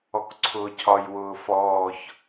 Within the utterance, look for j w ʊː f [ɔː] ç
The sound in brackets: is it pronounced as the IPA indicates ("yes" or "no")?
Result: yes